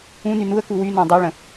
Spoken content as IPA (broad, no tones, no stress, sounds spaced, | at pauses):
ũ n y n u ə̯ k u w y n ɔ̃ dˤ o ɭ ə̃